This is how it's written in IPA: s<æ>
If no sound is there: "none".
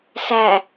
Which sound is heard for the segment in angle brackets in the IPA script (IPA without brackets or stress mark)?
æ